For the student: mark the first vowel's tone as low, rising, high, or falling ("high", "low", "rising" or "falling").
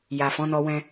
low